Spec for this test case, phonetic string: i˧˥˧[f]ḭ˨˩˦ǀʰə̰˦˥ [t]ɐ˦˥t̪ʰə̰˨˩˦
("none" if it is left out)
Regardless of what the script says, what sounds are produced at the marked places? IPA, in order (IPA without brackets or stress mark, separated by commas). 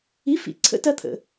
f, t